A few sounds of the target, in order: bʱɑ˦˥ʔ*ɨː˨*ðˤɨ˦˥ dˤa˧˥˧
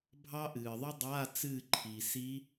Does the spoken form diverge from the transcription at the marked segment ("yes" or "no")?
no